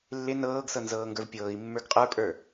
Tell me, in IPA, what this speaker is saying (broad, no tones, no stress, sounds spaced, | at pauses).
lː ɪ n ɤː ɡ s ɤ n z ɤː ŋ ɡ ə˞ v pʲ ɤː i̯ mː ə˞ ɡ qʼ ə˞ pʼ ə˞